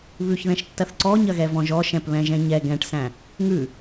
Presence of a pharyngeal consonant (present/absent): absent